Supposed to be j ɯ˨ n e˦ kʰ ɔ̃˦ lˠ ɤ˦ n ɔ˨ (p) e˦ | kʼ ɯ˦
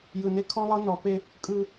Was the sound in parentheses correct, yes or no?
yes